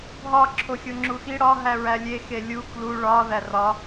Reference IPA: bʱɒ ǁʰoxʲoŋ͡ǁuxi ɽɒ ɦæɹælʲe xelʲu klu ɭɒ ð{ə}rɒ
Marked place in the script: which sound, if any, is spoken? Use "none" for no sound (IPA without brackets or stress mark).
æ